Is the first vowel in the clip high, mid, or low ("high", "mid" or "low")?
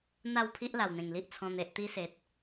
low